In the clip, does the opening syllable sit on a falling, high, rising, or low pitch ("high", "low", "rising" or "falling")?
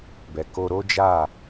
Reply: low